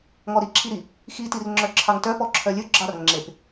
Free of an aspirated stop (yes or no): no